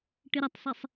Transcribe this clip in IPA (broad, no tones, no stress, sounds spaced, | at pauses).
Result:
ʈ ɨ ɾ ə tˤ sˤ e sˤ